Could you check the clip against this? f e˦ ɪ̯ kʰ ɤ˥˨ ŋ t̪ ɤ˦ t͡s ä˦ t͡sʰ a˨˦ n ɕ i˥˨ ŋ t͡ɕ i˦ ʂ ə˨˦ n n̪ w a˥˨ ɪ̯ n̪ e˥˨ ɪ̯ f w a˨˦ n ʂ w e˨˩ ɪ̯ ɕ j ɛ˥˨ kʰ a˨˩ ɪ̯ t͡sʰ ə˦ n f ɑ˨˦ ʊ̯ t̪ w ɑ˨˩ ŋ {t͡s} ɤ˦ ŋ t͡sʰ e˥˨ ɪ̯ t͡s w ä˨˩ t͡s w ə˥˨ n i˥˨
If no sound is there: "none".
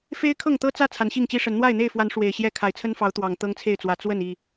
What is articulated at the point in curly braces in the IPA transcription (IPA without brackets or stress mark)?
t̪